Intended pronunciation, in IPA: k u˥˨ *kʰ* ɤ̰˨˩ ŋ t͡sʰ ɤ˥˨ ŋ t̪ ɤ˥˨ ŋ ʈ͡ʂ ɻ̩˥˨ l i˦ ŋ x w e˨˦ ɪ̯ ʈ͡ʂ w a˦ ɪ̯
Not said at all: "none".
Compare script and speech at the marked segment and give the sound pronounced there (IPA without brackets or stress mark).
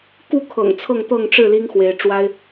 kʰ